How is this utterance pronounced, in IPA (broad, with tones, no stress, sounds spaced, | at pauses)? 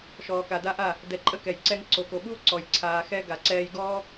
ʃ ɔː˨ k a˨ d a˧ ʔ a˦˨ | d ɛ˧ ǃʼ ə˦ k ɛ˨ j ǀ ɛ˧ ŋ ǀ o˨ k o˨ ɓ u˦ o̯ ǀ ɔ˨ j ǀʰ aː˨ x ɛ˧ ɡ a˨ ǀ ɛː˧ j ɡ ɔː˦